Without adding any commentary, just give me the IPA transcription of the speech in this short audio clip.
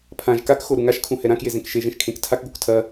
pʰ ã ʒ k a k x o ɾ u ŋ a ʃ kʰ ũ h ɛ ɾ ã k j e z ẽ k ʃ e ʒ ẽ ʃ kʰ ẽ k tʰ a k ɡ o k tʰ ɐ

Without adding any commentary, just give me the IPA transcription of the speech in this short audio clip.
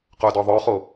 q œ d ɔ ðˤ œ χ o

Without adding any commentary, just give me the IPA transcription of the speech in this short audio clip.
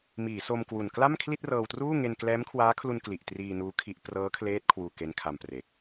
m iː˩˦ s o˧ m k w u˨˩ n k l a˥˩ m kʰ l i˥˩ t̚ r ɤː˧ w t r uː˥˩ ŋ e˧ n k l ɛː˦˥ m kʰ w aː˦˥ kʰ l u˧ n k l i˨˩ ʔ t r iː˧ n uː˦˥ kʰ i˦˥ ʔ p r ɤː˦˥ kʰ l eː˦˥ t̚ kʰ w uː˧ k e˦˥ n kʰ a˧ m p r e˨˩ k̚

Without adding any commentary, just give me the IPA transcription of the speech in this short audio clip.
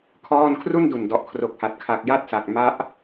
kʰ ɔː˥˩ n kʰ r u˥˩ n d u˨˩ n d ɔ˨˩ ʔ kʰ r o˨˩ k̚ h a˨˩ t̚ kʰ a˨˩ k̚ j a˥˩ t̚ s a˨˩ k̚ m a˦˥ ʔ

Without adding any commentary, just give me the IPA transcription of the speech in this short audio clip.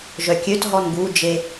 ʒ œ kʲ ø t ɦ ɔ n ɡ u d͡ʒ e

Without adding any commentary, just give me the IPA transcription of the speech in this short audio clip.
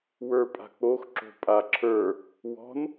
w ə˞ pʼ a̤ k͡p o x ǁ o̤ pʼ a ǁʰ ə˞ | w ɔ̤ n

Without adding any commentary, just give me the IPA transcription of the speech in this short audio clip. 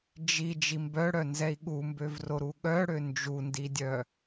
d͡ʒ i d͡ʒ i m b œ ɽ œ n z ɛ i̯ ɠ u m b ø v r o ɾ u ɠ œ ɽ ø n d͡ʒ u n d i dʲ œ

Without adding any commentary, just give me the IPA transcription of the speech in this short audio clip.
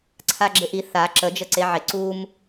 ǀʰ a ɡ͡ǁ ɪ ʔ i θ a ǁ ə d͡ʒ ə ǀ e ʕ ɪ ǀ u m

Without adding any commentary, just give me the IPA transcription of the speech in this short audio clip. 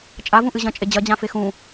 t͡ʃʼ a v ũ ʔ ɨ ʑ ɐ̃ t͡ʃʼ e d͡ʑ ɐ d͡ʑ ã f e x ũ

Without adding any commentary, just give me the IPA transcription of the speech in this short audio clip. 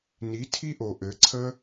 n i˨˦ tʰ i˦ ʔ o˨ ʔ ɘ˨˦ ǀʰ ə˦

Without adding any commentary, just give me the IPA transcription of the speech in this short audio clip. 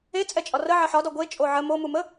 e t͡sʼ ɛ t͡ʃʼ ɒ r ə ʕ ə ħ ɒ d ɒ ɡʷ e t͡ʃʼ o ʕ ə m o m u m ə

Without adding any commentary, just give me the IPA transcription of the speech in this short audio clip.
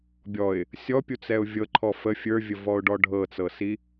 bʲ ɔ ɪ̯ | sʲ ɔ pʲ u t͡s ɛ ʊ̯ vʲ ɤ ǃʰ ɔ f ə fʲ ə˞ vʲ ə v ɔ ʊ̯ ɖ ɔ ɖʱ ɤ t͡s ɤ s i

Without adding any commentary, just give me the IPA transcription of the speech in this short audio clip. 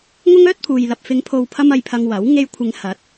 ŋ ʊ˥ ŋ œː˥ t̚ pʰ uː˨ j l ɐ˨ p̚ f ɪ˨˧ ŋ pʰ o˨ w pʰ ɐ˧ m ɐ˧ j pʰ ɐ˧ ŋ w ɐ˨˥ w ŋ e˧ j kʷʰ ɪ˨˧ ŋ h ɐ˨˥ t̚

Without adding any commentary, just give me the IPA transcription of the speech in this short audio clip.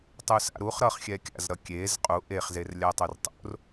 tˤ u s a̰ ɾ u χ ɾ ʌ χ xʲ ɛ kʲ a̰ z ɾ ʌ kʲ e z qʼ u ʔ e χ z e r lʲ a tˤ u r tˤ o̰ r

